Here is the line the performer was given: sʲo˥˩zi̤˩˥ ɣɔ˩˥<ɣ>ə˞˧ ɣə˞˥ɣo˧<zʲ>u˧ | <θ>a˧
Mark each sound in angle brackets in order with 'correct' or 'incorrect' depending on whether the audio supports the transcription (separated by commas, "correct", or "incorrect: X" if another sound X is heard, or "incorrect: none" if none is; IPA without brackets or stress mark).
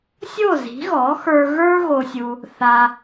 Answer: incorrect: x, incorrect: sʲ, correct